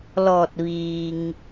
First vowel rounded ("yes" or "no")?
yes